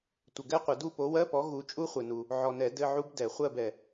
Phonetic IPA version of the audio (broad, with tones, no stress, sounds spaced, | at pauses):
tʷ ə˨ ɡ ɛ˦˥ qʷ ə˨˩˦ d u˥˨ p o˨˥ w ɜ˧˥˧ p ɔ˨˥ ɣ u˨˥ t͡ʃʼ u˦˥ χʷ ɘ˨ n u˨ | ʕ ɔ˨ n ɛ˨˩˦ d ɘ˧˥˧ ʕ u˦˥ b d ɛ˨˩˦ χʷ ɜ˥˨ b ɛ˨